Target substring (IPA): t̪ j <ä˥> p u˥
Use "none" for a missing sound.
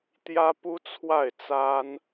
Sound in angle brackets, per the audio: ä˥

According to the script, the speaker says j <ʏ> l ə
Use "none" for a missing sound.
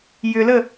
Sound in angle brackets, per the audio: ʏ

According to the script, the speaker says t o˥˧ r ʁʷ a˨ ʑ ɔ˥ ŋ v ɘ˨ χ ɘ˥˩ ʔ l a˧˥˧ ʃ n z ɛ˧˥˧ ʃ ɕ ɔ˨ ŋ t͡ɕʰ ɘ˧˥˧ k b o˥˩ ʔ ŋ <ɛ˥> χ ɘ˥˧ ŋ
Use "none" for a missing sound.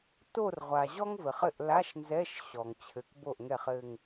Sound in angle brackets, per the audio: ɛ˥˩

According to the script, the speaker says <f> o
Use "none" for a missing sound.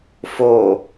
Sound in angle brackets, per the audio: f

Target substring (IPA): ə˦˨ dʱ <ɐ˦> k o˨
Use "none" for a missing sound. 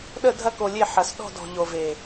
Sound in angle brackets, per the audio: ɐ˦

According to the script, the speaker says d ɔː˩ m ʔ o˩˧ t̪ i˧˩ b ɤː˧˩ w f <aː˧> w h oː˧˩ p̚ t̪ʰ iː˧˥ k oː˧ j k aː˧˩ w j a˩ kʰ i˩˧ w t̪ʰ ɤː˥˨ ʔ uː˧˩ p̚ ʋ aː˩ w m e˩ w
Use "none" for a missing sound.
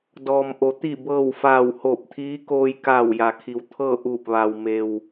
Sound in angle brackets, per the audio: aː˧˩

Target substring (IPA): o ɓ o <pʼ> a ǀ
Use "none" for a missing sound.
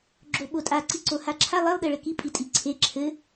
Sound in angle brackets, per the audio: tʼ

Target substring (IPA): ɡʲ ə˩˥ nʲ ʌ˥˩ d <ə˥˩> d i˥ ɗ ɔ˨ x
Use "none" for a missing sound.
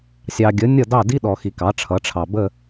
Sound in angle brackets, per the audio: ɑ˥˩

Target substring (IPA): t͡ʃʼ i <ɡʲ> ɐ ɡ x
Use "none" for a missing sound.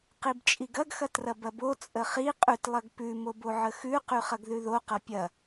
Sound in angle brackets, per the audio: ɡ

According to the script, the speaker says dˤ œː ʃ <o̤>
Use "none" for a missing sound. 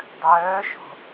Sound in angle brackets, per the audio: o̤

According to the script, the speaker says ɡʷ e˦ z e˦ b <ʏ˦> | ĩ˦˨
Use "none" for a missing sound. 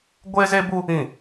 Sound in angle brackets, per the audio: u˦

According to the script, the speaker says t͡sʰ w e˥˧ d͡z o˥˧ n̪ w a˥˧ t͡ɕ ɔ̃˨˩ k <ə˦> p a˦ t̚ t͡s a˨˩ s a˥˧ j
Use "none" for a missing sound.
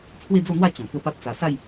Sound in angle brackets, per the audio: ə˦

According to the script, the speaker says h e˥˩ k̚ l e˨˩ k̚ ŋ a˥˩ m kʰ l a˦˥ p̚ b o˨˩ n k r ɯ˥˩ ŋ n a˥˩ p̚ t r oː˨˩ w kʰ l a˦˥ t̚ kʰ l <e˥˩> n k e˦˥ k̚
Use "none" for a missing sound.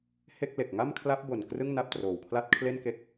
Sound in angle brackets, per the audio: e˥˩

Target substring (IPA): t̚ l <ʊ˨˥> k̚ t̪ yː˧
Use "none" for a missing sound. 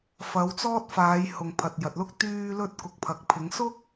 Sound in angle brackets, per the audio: ʊ˥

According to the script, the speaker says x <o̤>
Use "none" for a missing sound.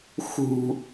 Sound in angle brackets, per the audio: ṳ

